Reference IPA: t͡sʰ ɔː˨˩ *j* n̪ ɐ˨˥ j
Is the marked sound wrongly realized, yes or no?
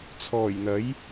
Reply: no